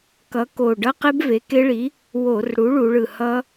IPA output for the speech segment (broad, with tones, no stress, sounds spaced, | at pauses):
k ʌ˨˥ k o˨˩ ɖ ʌ˦˥ q ɛ˦˥ b v e˩˧ k e˦˥ ɭ i˨˥ | w o˧˩˧ r ɽ u˨˥ ɭ u˩˧ ɭ ɯ˨˩ h ʌ˦˥